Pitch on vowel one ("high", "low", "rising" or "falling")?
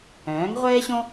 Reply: rising